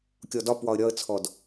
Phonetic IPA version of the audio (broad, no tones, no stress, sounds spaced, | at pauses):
kʲ ɔ d ɒ p w ɒ ə̯ ɾʲ ɒ ə̯ t͡sʰ ɔ d